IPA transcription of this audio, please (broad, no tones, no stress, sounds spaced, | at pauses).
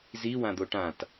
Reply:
z i w ã d̪ o ʈ ã t